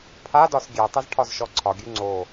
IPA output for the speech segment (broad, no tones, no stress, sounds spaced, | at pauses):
pʰ a d ɒ s ɡʲ ɛ tˤ ə z ʈʰ ɒ z ʃ ɔ ǀʰ ɒ ɡʲ ʉ ŋ͡ǀ o